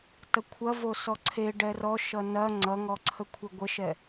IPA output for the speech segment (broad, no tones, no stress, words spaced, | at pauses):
tʌkʷʰɐ vosɔǀʰe ɖɛrɔ ʃʌnɐ ŋ͡ǀʌŋɔǀʰə kʷʰeɡʷəʃɛ